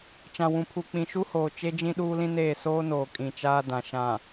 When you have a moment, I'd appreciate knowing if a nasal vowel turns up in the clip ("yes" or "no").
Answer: yes